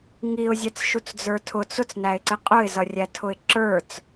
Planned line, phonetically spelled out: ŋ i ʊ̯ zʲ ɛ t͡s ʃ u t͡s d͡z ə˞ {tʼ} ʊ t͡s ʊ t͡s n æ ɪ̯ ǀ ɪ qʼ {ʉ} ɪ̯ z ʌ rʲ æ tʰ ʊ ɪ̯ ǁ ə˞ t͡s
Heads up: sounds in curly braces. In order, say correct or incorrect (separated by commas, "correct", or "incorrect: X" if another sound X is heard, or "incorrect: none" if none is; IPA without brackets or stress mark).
incorrect: tʰ, incorrect: ʊ